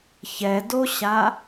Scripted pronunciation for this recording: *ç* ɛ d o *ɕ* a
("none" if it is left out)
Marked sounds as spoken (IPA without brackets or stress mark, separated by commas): ç, ɕ